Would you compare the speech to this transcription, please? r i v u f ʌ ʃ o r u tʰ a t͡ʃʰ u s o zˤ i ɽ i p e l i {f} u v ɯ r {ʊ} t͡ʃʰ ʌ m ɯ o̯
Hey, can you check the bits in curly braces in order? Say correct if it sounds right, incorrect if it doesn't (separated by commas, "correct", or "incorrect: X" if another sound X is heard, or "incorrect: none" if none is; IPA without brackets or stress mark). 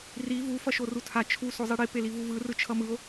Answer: incorrect: v, incorrect: ɯ